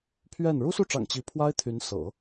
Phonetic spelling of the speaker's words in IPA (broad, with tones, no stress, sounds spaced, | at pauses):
pʰ ɥ ɛ˥˩ n ɻ u˥ s u˥˩ ʈ͡ʂ ɑ̰˨˩ ŋ t͡ɕ i˧˥ pʰ w a˥ ɪ̯ t̪ʰ y˧˥ n s ɤ̰˨˩˦